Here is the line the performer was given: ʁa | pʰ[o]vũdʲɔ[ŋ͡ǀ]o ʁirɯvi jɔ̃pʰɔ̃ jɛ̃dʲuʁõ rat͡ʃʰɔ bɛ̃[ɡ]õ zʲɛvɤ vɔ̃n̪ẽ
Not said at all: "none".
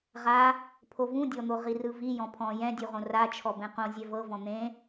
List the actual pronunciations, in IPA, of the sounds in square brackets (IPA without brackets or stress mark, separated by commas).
o, n̪, q